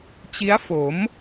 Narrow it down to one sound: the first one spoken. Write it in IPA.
t͡ɕ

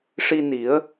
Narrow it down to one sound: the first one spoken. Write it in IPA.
ʂ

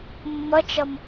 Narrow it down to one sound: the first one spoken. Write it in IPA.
mː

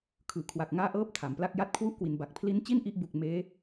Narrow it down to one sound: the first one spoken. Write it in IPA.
kʰ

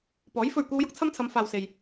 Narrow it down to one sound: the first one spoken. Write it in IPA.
p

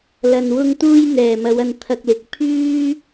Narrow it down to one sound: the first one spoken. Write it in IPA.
l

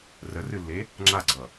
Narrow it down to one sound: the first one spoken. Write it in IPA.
r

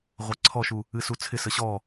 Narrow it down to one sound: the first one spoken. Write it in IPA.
ʁʷ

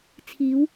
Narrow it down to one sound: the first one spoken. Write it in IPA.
t͡sʰ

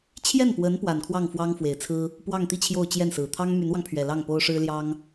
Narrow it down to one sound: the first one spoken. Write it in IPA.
t͡ɕʰ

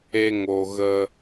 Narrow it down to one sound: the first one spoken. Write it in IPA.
e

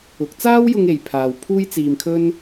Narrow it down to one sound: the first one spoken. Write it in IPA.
ʊ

